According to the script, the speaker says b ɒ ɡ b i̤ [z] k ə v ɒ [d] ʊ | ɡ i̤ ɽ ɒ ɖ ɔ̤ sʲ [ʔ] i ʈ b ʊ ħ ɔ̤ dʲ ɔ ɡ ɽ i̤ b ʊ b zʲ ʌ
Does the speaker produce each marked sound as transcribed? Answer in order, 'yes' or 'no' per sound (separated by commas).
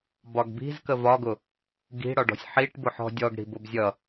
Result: yes, no, no